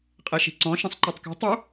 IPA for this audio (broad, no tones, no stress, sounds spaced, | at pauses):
qʼ e ʃ i̤ ǀ ɔ̃ ʃ ɛ̃ sˤ ǃ ɜ tˤ k ɛ̤ tˤ u